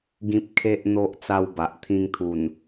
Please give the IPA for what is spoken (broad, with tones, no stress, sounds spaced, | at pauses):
ɡ ĩ˨ p̚ kʰ e˨ ʔ n̪ o˨ ʔ t͡s a˧ w b a˨ ʔ t̪ʰ ĩ˧ ŋ t̪ʰ u˨˩ n